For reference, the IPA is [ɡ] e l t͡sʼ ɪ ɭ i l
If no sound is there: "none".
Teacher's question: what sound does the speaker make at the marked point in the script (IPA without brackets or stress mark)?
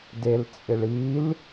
d